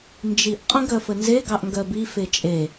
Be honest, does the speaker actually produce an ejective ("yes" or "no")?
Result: yes